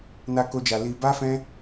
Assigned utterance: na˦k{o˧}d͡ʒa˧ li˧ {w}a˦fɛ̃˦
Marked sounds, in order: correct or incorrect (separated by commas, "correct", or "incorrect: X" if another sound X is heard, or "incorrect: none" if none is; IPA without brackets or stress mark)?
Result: incorrect: o˦, incorrect: b